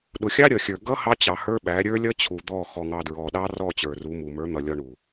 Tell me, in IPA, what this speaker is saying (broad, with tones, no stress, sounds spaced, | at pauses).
ɗ ʊ˨ xʲ ɑ˦ ɾʲ ʌ˨ xʲ ə˞˨ ɡ ʌ˦ h ɑ˦ t͡ɕ ɑ˨ h ə˞˦ ɓ æ˨˦ ɾʲ ə˞˦ lʲ ʌ˦ t͡ɕʰ u˨ d̪ ɔ˦˨ x ɔ˨ ŋ ɑ˨ d ɹ ɔ˨ ɗ ɑ˦ r ɔ˦˨ t͡ɕ ə˞˨ r u˨˦ m u˨ m ə˞˨˦ n̪ ʌ˨ lʲ ɔ˨ ɳ u˨